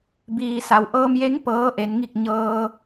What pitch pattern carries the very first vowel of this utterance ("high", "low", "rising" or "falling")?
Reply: low